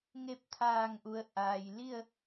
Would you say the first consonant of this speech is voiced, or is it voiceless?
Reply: voiced